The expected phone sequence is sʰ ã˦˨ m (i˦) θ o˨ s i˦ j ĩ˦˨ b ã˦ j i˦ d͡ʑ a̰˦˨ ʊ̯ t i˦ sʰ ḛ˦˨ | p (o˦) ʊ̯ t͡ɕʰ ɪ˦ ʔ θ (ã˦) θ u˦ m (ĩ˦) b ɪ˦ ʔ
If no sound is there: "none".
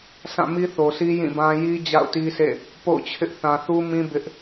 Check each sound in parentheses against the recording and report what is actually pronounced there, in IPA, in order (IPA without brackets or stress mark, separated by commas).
i˦, o̰˦˨, ã˨, ĩ˦